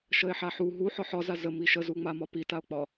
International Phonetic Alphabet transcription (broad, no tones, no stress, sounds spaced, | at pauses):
ʃ ə e̯ ħ a ħ u ɦ u ħ ɒ ħ ɒ z a z ə m i ʃ ə z u ŋ͡m a m ɒ p i t a o̯ k͡p ɒ